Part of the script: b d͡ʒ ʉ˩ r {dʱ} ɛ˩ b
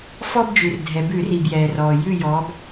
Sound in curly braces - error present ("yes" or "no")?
no